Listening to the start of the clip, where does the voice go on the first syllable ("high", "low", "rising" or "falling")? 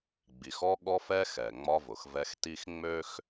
low